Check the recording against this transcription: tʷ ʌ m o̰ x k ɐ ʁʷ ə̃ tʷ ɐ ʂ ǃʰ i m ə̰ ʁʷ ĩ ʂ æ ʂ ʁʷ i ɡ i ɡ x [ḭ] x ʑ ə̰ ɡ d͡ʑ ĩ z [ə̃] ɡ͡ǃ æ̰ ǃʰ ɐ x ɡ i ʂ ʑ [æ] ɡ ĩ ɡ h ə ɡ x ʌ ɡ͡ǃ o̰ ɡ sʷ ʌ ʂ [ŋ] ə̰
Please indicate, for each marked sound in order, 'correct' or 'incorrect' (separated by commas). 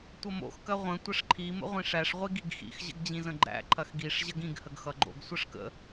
correct, correct, incorrect, incorrect